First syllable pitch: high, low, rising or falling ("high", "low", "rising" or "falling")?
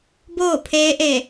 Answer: falling